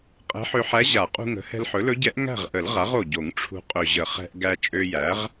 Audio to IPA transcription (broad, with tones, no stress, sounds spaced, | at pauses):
qʼ ɛ̤˧˥ ħ ø˧ ħ æ˧˥ ʑ a˨˩˦ qʼ ṳ˧ ŋ ə̤˩˥ h ɛ̤˧ l ħ ɵ˩˥ l ɵ˧˥ ɟ ɛ˧˥ ʔ ŋ æ̤˥˨ ʁ ʔ ə˨˩˦ l ʁ a˩˥ ʁ o˨˩ ɟ o˨˩˦ ŋ ʈ͡ʂʰ ṳ˧ qʼ ɵ˨˩ ʑ ə˨˩˦ χ ɛ̤˧ ʔ ɡ æ˧ t͡ʃʼ ø˧ j æ˩˥ ʁ